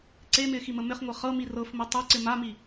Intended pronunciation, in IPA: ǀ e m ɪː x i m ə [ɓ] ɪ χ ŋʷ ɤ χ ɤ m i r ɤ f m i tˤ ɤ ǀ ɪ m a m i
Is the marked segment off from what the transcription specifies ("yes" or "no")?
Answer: yes